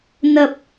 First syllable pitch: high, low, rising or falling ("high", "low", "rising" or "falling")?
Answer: low